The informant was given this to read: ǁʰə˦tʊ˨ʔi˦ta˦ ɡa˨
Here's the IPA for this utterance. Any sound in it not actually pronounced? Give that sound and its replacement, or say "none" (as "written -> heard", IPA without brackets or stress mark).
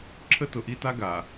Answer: none